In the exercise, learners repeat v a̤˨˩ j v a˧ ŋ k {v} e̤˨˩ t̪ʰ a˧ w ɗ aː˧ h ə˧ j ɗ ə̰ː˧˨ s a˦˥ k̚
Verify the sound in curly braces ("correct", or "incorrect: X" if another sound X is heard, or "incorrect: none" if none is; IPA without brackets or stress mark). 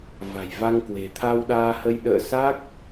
incorrect: w